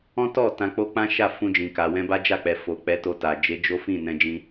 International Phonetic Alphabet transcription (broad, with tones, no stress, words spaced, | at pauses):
ɔ̃˦tɔ˦˨ tã˧k͡po˦ k͡pã˦ʃa˦˨ fũ˧d͡ʒĩ˨ ka˨wɛ̃˧ ba˦d͡ʒa˦˨k͡pɛ˨ fo˨ k͡pɛ˨˦to˧ta˨ d͡ʒe˨˦d͡ʒo˦fĩ˦˨ nɛ̃˧d͡ʒĩ˧